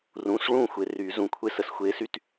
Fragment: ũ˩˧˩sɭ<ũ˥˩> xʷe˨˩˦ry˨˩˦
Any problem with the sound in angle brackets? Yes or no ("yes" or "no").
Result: no